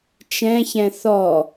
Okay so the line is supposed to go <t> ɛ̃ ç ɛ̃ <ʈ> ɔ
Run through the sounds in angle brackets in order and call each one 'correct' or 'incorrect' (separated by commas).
incorrect, incorrect